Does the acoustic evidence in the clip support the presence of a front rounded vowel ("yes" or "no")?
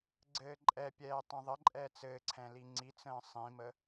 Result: no